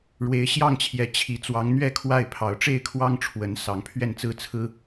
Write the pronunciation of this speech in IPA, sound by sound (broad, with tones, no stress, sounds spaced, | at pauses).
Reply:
ɻ w e˨˦ ɪ̯ ɕ j ɑ˥˨ ŋ t͡ɕʰ j ɛ˨˦ t͡ɕʰ i˨˦ t͡s w ɑ˨˦ ŋ n̪ ɥ ɛ˥˨ kʰ w a˥˨ ɪ̯ pʰ ɑ˨˦ ʊ̯ ʈ͡ʂ e˥˨ ɪ̯ kʰ w ɑ˦ ŋ ʈ͡ʂʰ w ə˨˦ n s ɑ˨˦ ŋ pʰ ɥ ɛ˥˨ n t͡s ɹ̩˦ t͡sʰ ɹ̩˦